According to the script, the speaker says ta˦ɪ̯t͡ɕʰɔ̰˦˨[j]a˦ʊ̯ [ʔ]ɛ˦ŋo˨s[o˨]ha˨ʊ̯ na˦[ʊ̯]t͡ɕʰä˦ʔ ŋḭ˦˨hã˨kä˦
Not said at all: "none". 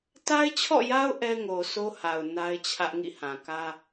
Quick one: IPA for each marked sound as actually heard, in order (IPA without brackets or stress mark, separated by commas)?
j, ʔ, o˦, ɪ̯